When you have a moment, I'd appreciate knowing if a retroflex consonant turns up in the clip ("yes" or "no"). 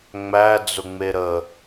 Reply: no